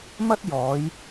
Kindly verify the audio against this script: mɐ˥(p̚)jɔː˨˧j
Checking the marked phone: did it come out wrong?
yes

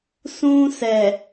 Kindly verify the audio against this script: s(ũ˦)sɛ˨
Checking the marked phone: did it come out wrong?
no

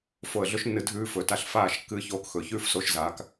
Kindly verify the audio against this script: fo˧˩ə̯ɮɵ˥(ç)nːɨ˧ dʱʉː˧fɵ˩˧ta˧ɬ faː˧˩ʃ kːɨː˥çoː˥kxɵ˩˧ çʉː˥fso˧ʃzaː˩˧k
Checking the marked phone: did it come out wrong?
yes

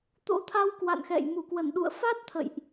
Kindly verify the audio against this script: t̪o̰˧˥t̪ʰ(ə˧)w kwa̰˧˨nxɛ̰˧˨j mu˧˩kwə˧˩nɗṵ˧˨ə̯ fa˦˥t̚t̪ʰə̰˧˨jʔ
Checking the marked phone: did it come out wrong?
yes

